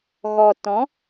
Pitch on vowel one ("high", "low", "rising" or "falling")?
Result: low